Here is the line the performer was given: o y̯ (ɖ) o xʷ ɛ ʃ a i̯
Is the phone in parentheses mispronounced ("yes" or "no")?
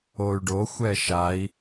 no